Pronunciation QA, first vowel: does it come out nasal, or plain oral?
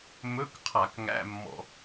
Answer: oral